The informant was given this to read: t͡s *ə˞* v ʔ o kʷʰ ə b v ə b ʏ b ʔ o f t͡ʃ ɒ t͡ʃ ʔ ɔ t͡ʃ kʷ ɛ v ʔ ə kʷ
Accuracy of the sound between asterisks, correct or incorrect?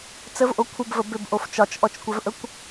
incorrect